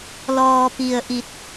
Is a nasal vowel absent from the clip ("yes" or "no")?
yes